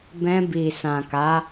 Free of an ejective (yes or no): yes